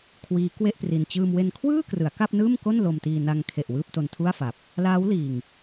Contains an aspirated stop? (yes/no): yes